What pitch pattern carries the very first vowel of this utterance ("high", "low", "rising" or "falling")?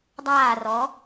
falling